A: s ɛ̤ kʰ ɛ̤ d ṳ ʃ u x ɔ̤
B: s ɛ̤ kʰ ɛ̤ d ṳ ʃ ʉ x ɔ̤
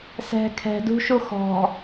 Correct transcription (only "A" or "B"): A